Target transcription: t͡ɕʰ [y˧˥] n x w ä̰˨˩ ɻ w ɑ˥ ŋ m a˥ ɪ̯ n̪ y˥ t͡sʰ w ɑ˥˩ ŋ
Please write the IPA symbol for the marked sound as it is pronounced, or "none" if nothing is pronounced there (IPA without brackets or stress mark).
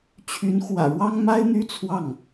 y˧˥